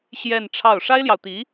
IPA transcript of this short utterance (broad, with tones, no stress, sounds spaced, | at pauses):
ɕ j ɛ˥˧ n ʈ͡ʂʰ ɑ˥˩ ʊ̯ ʂ a˥ ɪ̯ l j ɑ˨ ʊ̯ t̪ i˧˥